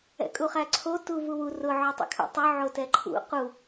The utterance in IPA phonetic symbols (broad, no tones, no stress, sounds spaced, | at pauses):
ɛ̰ kʼ u χ æ ǀʰ o t u v u w u r ʊ ʕ ɵ tˤ ɛ̰ kʰ ṵ tˤ ɵ ʕ o t ɛ ǃʰ ṵ q u